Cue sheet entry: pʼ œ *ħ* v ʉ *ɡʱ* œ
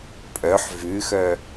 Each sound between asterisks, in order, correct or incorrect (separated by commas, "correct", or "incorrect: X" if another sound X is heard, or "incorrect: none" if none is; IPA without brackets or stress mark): correct, incorrect: x